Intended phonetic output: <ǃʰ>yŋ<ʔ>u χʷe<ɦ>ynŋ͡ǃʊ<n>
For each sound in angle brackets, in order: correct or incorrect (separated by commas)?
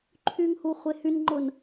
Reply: correct, incorrect, incorrect, correct